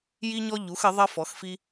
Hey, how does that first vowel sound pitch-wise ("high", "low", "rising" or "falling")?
high